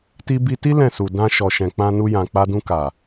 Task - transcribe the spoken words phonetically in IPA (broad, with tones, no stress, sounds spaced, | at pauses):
t i˧ b i˧ t i˦ l ɛ̃˦˨ s u˨ d ã˧ ʃ ɔ˨ ʃ ɛ̃˨ k͡p ã˧ n u˧ j ã˨ k͡p a˧ d ũ˧ k a˨